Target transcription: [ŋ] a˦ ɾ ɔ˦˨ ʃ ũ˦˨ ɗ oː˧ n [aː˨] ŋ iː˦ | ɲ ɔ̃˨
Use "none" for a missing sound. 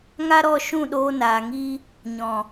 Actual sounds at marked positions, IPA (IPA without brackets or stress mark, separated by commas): ŋ, aː˨